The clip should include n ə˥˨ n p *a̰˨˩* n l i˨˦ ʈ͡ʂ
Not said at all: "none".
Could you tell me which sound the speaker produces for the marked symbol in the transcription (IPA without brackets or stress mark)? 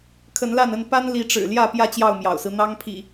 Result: a˦